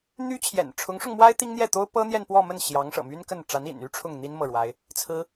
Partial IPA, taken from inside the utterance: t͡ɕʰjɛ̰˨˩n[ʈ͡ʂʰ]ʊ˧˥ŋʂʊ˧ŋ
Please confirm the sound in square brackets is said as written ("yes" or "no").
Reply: yes